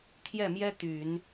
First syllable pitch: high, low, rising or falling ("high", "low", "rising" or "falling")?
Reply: falling